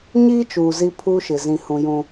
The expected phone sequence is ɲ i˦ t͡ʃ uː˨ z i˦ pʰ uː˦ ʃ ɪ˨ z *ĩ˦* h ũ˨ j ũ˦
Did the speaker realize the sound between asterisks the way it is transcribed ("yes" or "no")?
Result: no